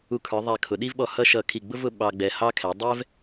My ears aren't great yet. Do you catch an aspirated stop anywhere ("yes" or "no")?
yes